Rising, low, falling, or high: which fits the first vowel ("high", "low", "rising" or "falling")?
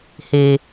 low